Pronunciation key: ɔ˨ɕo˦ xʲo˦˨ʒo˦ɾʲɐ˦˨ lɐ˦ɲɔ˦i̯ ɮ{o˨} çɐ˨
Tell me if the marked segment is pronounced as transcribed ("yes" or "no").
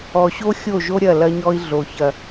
yes